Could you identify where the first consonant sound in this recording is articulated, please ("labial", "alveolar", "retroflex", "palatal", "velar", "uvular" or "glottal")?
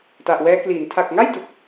alveolar